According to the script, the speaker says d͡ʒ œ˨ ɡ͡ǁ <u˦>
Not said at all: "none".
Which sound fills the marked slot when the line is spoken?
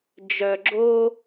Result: o˦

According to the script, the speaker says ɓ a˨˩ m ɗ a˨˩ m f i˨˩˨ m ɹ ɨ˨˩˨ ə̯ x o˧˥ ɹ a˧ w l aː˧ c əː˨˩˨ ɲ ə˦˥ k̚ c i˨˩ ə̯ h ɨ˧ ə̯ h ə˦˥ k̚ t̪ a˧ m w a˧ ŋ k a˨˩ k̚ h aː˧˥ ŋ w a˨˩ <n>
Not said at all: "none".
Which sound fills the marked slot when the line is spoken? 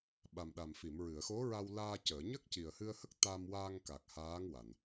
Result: n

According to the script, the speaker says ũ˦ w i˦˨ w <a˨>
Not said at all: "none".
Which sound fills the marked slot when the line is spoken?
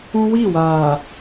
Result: aː˨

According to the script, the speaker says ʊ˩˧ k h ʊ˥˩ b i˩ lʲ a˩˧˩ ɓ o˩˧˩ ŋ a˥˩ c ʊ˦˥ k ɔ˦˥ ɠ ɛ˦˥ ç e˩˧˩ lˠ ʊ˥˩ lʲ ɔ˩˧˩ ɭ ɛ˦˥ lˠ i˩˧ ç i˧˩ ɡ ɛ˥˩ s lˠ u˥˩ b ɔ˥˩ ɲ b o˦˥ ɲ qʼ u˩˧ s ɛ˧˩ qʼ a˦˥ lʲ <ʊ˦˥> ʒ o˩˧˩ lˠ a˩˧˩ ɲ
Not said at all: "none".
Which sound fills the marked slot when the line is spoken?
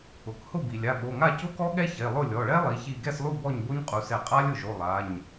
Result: ʊ˩˧˩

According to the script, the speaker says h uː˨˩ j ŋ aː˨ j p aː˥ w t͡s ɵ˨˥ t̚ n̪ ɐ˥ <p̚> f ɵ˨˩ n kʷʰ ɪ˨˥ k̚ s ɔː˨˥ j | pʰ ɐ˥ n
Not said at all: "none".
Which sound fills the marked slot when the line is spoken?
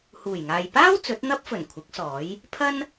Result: p̚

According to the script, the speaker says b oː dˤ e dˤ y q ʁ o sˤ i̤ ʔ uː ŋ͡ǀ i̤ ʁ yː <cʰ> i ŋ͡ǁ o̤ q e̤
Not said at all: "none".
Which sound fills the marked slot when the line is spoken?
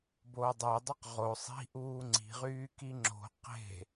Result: k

